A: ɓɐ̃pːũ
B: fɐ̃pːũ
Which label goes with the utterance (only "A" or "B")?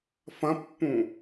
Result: B